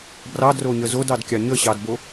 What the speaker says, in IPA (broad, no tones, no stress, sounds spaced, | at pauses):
b r ɑ d r o ɲ ə z o d ɑ d kʲ ɑ ɲ ə ɕ ɑ d b o